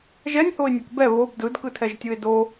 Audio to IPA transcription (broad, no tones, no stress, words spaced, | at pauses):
ʒɛnʲhoɪ̯nʲɤk bɛ βob dɯdkɯtʰɛʒtʲɯɪ̯ do